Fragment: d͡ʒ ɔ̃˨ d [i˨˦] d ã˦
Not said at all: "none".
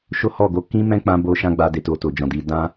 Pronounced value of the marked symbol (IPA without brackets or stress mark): i˨˦